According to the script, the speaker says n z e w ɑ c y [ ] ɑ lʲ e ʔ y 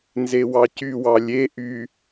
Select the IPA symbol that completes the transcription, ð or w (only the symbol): w